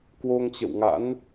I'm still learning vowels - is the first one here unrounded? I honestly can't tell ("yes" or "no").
no